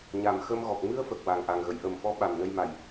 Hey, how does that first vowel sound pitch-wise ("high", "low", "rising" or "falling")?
low